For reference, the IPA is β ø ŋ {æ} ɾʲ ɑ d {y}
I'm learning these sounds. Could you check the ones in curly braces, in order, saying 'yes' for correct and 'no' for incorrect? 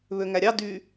yes, yes

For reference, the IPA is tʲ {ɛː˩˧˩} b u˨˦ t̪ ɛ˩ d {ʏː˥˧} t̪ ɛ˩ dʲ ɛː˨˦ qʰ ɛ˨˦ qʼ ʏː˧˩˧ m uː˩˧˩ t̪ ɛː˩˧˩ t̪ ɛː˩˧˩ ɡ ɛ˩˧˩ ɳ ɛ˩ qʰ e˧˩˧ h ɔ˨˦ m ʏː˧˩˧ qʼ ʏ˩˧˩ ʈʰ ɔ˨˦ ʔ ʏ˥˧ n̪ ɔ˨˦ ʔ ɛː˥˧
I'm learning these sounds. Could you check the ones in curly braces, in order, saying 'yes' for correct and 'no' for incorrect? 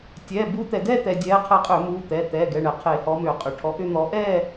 yes, no

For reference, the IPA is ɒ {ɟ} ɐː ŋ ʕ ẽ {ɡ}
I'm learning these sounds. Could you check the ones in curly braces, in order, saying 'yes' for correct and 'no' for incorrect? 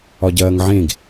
yes, yes

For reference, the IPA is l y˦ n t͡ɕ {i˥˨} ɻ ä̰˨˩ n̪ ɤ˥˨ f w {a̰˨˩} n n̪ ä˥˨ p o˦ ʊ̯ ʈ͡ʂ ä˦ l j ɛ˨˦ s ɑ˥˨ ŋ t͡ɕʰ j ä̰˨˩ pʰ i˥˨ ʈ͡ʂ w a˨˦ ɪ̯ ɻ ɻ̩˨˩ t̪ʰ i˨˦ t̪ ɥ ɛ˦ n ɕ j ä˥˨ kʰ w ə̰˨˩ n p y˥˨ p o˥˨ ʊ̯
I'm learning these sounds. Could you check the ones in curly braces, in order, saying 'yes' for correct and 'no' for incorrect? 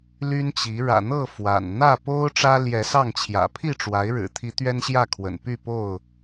no, yes

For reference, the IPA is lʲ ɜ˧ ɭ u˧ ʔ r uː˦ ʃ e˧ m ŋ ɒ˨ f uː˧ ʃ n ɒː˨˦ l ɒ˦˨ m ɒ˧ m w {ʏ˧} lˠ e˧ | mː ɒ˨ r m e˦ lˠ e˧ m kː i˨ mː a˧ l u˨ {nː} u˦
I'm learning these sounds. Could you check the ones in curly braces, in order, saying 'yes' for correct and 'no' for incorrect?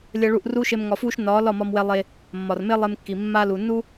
no, yes

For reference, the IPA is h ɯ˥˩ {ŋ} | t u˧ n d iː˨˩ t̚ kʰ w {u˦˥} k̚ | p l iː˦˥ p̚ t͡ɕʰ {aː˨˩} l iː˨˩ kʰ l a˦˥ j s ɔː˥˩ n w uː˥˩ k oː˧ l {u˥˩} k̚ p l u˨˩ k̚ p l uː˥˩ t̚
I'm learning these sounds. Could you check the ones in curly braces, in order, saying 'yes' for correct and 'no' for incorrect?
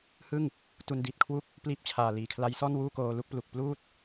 yes, no, yes, yes

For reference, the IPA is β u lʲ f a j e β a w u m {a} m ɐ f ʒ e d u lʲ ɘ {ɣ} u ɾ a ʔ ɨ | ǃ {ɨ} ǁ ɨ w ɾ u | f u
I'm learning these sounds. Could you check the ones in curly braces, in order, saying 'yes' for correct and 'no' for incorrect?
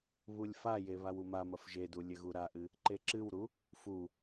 yes, yes, no

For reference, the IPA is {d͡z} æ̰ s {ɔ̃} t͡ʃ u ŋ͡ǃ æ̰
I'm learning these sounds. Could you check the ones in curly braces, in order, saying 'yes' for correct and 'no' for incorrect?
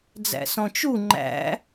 yes, yes

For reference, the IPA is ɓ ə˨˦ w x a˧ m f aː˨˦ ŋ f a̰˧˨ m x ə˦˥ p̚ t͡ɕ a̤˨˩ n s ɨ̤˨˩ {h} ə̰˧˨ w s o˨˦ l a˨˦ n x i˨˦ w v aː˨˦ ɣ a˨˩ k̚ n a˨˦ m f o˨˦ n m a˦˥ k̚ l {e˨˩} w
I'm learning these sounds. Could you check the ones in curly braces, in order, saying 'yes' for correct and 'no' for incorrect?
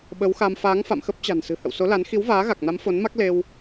yes, no

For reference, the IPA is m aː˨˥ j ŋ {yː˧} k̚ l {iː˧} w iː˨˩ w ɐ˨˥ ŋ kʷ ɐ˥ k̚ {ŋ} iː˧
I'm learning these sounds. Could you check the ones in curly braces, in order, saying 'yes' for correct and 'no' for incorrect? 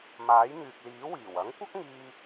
no, no, yes

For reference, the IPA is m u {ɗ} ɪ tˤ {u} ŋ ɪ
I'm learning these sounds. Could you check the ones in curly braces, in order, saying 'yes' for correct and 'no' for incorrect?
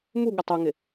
no, yes

